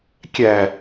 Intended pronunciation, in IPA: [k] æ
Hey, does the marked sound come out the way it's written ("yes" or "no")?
no